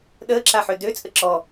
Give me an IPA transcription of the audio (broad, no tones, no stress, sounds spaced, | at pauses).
ɗ əː ǁ a ħ ø d ø t͡sʼ ə ǁ ɔ